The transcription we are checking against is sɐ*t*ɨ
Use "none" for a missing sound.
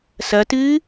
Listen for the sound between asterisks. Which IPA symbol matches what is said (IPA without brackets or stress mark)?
t